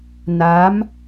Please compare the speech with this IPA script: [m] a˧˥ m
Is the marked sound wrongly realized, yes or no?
yes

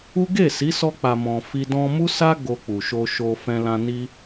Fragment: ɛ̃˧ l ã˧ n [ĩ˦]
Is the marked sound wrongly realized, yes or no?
yes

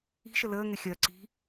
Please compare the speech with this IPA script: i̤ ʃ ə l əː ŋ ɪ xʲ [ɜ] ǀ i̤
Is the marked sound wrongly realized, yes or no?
no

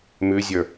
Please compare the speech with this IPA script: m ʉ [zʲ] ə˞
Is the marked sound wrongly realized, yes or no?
no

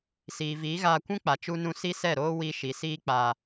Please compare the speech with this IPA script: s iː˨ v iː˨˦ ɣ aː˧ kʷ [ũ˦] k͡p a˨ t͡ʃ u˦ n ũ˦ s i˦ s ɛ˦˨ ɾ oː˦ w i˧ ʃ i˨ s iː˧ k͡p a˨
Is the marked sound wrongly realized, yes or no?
no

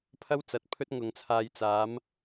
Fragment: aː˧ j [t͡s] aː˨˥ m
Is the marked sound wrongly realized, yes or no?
no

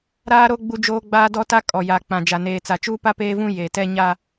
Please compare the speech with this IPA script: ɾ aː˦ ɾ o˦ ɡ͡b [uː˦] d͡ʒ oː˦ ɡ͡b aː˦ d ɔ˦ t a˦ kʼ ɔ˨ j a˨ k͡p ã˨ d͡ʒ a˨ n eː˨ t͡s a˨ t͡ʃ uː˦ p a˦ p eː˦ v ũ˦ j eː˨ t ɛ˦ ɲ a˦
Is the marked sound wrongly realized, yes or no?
yes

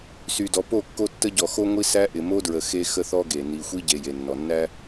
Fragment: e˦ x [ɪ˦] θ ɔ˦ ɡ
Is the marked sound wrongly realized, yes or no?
yes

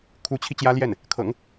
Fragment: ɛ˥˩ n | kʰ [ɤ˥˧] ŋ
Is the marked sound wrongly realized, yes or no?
yes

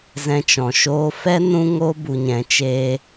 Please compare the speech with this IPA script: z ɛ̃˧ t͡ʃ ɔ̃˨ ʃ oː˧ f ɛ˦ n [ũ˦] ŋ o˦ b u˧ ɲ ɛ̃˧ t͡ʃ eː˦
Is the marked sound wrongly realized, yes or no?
no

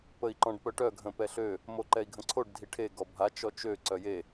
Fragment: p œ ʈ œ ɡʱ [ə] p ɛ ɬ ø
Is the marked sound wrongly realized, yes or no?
yes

